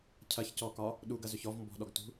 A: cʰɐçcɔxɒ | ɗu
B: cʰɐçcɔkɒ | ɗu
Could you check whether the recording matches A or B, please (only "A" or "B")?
B